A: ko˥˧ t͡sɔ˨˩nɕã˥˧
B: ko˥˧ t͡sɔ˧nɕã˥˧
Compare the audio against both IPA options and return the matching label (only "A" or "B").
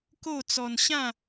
B